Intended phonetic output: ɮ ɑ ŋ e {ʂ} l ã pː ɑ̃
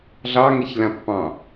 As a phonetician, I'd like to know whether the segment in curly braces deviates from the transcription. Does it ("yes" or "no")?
yes